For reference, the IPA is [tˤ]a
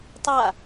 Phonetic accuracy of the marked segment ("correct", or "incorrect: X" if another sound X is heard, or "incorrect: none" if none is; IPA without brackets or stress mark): correct